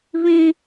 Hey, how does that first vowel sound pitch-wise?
high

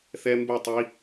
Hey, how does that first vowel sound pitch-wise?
high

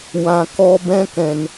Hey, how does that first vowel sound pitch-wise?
low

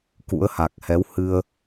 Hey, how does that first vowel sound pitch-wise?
rising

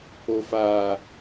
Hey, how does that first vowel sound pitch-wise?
high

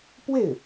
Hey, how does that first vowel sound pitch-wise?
falling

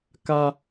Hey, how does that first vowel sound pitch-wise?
high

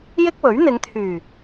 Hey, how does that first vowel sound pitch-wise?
high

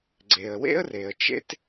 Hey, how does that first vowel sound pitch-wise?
low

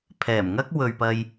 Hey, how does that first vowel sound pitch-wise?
low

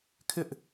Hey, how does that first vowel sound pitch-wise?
high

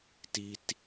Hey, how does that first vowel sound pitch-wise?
high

